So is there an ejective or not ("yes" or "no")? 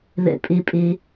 yes